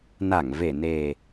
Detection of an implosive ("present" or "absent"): absent